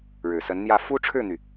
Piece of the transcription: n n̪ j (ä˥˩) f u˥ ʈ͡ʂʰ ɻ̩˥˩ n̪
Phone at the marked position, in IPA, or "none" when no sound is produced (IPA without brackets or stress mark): ä˥˩